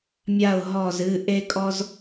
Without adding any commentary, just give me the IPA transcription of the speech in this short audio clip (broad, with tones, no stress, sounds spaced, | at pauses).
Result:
mʲ a˧˩ ʊ̯ ɦ ɔ˧˩ z ɨ˩˧˩ ʔ e˦ kʼ ɔ˦ z